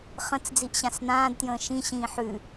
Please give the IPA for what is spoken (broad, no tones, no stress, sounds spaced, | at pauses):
χ ə̃ t͡s d͡z i ʔ ɕ ã s n ãː d t j ə̃ː ʃ ĩ ɕ ĩː ħ ʉ